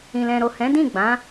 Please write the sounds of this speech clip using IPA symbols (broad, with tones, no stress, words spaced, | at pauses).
ĩ˨lɛ̃˨ɾo˨ hɛ̃˨˦dĩ˦˨ɡ͡bã˨˦